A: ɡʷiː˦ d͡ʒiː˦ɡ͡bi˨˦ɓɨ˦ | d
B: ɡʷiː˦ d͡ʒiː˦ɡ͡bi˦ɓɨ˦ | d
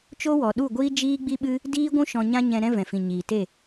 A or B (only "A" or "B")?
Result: B